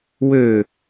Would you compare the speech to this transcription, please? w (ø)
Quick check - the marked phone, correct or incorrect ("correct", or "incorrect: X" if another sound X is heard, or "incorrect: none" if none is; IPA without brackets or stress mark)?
correct